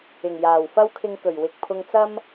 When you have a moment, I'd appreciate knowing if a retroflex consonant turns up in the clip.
no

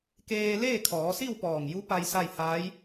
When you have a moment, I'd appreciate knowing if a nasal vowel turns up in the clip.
no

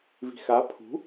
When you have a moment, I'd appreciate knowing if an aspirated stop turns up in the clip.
yes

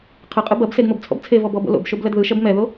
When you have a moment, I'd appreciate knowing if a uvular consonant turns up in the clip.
yes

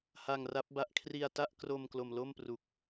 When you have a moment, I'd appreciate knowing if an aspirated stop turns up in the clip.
yes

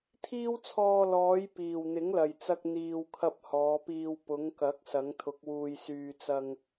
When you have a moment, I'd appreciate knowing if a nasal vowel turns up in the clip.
no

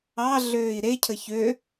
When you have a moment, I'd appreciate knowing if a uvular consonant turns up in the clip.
no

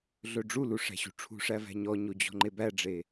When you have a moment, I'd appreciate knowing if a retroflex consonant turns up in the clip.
yes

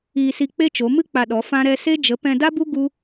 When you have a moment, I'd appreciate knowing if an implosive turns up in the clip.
yes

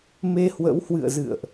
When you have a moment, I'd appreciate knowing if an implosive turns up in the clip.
no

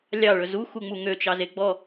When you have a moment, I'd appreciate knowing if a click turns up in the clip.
no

